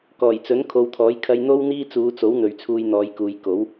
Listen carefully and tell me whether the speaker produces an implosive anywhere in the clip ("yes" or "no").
no